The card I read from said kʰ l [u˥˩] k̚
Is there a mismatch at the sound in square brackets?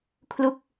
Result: no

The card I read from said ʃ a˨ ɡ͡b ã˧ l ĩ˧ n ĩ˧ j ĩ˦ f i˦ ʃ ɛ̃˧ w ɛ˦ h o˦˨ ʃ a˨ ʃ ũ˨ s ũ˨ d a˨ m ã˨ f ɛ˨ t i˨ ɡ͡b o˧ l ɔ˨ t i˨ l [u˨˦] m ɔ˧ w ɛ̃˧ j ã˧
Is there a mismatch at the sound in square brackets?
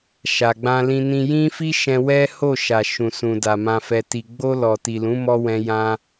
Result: yes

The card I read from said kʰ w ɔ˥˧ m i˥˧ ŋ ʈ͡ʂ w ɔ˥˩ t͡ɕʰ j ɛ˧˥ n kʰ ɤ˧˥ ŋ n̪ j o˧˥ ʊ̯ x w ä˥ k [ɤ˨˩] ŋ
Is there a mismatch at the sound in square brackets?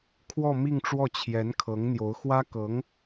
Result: yes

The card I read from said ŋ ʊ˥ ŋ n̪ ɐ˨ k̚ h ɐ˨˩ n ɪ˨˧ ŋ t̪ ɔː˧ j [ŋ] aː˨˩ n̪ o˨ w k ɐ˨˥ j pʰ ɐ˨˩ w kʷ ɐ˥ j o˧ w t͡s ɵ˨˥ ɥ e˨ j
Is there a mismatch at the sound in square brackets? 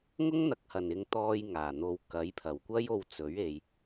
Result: no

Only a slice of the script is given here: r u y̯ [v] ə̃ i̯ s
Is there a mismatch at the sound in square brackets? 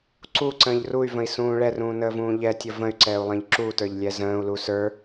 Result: no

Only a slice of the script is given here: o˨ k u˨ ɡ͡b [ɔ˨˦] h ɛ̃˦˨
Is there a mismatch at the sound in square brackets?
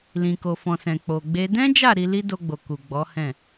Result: no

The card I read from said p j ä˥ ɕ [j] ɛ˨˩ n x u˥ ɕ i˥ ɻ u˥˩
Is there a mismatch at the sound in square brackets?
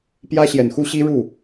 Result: no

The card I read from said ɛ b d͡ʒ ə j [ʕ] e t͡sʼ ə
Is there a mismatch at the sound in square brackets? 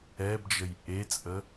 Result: yes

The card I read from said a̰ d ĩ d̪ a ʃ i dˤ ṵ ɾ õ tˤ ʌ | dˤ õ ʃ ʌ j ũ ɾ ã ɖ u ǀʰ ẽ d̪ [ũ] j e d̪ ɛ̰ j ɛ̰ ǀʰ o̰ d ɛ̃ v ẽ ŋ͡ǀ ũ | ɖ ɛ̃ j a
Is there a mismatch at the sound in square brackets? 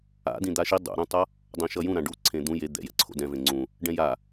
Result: no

